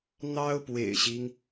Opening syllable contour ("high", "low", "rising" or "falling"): high